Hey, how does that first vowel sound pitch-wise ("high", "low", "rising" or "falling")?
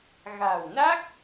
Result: low